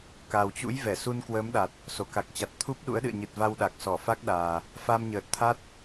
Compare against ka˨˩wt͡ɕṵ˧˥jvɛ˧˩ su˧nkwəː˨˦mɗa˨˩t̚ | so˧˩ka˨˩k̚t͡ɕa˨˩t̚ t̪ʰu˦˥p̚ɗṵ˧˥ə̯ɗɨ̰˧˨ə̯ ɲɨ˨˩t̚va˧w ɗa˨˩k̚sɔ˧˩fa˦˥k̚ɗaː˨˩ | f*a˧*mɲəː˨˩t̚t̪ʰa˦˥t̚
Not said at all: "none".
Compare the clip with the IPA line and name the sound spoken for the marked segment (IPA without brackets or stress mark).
a˧